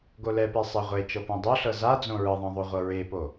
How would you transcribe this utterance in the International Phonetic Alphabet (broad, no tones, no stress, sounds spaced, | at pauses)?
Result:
ɡ o l ɛ p e sˤ ɛ ʁʷ e t͡ʃ ɤ p õ dˤ o ɬ ɤ z a d͡z õ ɹ ɯ ðˤ ɛ̃ ðˤ o ʁʷ ɤ ɹ e p o